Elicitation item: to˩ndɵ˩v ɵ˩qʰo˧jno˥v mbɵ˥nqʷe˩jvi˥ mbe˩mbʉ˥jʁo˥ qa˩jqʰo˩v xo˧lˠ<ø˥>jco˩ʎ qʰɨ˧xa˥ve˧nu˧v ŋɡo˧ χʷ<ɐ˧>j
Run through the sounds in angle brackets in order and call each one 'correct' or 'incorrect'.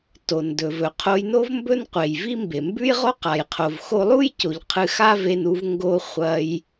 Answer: incorrect: u˥, correct

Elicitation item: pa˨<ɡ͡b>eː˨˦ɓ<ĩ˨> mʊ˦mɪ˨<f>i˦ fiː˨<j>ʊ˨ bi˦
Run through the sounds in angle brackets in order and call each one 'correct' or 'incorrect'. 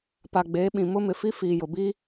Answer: correct, correct, correct, correct

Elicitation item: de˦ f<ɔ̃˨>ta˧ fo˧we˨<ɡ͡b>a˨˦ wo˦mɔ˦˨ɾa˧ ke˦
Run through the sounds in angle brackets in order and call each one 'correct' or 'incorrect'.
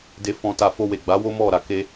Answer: incorrect: ɔ̃˧, correct

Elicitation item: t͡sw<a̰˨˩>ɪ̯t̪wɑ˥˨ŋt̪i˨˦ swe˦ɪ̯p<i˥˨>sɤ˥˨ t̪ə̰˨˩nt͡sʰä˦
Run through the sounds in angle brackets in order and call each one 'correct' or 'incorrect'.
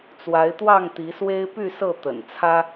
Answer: incorrect: a˨˦, incorrect: y˥˨

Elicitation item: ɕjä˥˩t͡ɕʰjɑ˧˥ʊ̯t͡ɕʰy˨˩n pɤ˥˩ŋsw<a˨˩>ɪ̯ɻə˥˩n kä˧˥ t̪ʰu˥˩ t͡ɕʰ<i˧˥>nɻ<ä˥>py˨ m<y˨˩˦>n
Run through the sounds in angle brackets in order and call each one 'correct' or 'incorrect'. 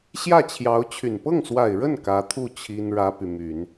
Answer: correct, incorrect: i˥, correct, correct

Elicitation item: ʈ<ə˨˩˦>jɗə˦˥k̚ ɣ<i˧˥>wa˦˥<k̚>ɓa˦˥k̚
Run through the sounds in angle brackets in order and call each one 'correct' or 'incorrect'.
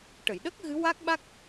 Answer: incorrect: ə˨˩˨, incorrect: ɨ˧˥, correct

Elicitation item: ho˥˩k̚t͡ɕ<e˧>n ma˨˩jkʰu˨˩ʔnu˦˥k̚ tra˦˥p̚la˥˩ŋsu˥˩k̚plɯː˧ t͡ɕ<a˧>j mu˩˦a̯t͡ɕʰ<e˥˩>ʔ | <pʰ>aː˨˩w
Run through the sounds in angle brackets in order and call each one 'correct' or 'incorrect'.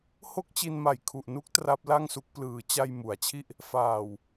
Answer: incorrect: i˧, correct, incorrect: i˥˩, incorrect: f

